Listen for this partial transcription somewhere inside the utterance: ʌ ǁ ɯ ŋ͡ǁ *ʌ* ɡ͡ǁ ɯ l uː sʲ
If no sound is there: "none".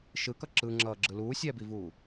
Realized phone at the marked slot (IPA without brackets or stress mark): ʌː